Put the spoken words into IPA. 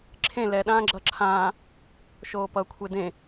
ǁʰ ẽ l ɛ ɗ ãː ɡ͡ǁ ʌ ǁʰ ãː | ʃ oː p ʌ kʷʰ e d ẽ

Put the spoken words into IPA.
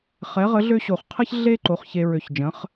χ ɛ˩˥ ʁ ə˩˥ ɮ ø˦ ɕ o˨ χ qʰ ə˦ ç ɮ e˦ ǃ o˩˥ χ ç e˨ ɹ ø˨ ç d͡ʒ ə̃˩˥ χ

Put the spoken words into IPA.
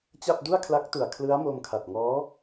t͡ɕ a˥˩ p̚ d u˥˩ a̯ kʰ l a˦˥ k̚ t u˨˩ a̯ kʰ l ɯ˦˥ a̯ m o˧ m kʰ a˨˩ t̚ ŋ ɔː˦˥

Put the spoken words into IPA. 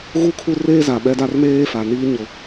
ɣ u˦˨ kʰ u˦ r eː˦ z a˨ ɓ ɛ˦ d a˦ r m eː˦ f a˨ n iː˦ ɲ ʊ˦

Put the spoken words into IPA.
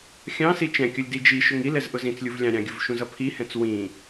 xʲ ɑ̃ s i t͡ʃ ɛ̃ kʲ ʌ lʲ d i d͡ʒ i ʃ ʊ ŋ i l ɛ z ʔ ʊ z ĩ t͡s lʲ u v lʲ ɑ̃ ɾʲ ɑ̃ ɡʲ ʊ v ʃ ũ z ʌ pʰ i h ɛ̃ t͡s w ĩ

